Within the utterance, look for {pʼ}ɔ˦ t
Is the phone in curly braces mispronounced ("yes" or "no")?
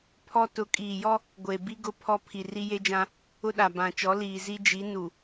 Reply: yes